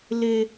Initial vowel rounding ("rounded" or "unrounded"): unrounded